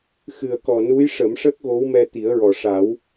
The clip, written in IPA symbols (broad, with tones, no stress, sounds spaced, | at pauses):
x ɨ˨˩ ə̯ k ɔ˨˩ n u˧˥ j ʂ ə˨˩˦ m ʂ ə˦˥ k̚ ɣ o˧˥ w m ɛ˧ t̪ i˨˩˦ ə̯ ɹ ɔ˨˩ ʂ a˨˩˦ w